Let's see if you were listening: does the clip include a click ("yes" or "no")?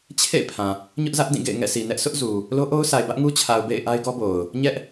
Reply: no